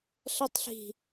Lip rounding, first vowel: unrounded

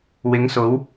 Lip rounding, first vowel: unrounded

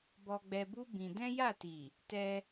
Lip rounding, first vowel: rounded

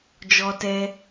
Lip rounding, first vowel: rounded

